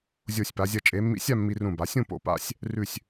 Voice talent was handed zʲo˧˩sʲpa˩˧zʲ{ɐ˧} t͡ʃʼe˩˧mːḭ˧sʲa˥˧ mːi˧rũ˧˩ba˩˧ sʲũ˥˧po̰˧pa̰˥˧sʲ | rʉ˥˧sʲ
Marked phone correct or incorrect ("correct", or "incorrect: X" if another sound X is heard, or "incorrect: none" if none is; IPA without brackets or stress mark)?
correct